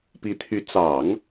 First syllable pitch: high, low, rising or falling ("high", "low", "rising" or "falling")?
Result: rising